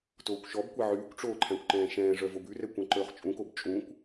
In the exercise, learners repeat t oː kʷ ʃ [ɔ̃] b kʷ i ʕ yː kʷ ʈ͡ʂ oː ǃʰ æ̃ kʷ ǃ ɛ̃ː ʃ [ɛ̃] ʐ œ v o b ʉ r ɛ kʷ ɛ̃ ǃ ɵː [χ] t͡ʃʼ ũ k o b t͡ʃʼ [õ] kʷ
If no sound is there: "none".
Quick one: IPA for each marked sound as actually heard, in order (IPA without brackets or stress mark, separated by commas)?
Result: ɔ, ɛ̃ː, χ, ũ